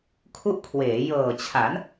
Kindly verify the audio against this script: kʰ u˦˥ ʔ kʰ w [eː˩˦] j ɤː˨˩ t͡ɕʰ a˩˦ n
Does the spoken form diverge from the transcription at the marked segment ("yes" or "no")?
no